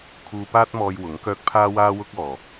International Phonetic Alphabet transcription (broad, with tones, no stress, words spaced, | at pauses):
kʰuː˧paː˥t̚mɔː˧j wʊ˨˥ŋkœː˥k̚ pʰaː˥waː˥wʊ˥k̚ɔː˨